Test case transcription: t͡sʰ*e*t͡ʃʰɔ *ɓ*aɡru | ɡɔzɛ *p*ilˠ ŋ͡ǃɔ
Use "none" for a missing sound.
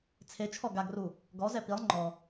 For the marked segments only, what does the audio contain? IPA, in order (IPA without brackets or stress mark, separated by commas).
e, ɡ, p